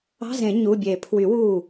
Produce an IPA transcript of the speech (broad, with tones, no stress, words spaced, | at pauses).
ɑ̤˧˥˧zẽ˨˩˦ ɲu˩˧˩ bʲe˨˩˦pʰwy˨˩˦ wuː˥˩